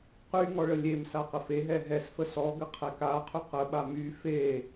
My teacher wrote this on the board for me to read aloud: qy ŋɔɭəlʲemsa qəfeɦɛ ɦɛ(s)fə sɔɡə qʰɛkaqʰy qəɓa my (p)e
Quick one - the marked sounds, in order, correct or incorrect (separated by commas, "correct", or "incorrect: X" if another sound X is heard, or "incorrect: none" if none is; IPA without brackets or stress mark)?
correct, incorrect: f